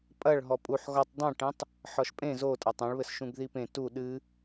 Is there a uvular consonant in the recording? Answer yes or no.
no